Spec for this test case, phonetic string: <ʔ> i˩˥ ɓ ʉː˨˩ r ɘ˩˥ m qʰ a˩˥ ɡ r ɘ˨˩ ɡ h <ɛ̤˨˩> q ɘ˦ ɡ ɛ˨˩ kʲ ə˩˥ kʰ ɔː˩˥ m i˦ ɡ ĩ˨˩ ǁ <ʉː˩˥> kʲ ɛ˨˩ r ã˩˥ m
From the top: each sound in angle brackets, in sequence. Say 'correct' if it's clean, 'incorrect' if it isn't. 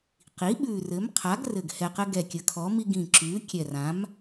incorrect, incorrect, correct

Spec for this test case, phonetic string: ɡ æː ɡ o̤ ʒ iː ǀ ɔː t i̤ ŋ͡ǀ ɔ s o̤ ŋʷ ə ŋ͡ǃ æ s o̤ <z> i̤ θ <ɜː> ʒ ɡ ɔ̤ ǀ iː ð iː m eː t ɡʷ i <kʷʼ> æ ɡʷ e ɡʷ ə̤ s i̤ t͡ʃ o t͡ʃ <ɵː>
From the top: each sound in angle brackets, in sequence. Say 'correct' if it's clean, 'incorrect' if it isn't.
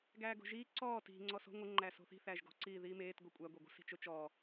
incorrect, incorrect, correct, incorrect

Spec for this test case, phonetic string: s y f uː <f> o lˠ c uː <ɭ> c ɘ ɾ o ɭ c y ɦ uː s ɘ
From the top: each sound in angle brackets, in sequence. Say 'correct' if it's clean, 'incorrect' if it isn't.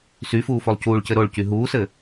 correct, correct

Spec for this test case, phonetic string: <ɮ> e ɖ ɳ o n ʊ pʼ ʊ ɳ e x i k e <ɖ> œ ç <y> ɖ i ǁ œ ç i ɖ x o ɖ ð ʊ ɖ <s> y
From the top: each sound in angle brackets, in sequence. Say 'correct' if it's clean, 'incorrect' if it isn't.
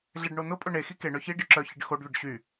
correct, incorrect, incorrect, incorrect

